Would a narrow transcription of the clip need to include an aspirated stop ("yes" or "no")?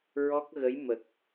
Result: no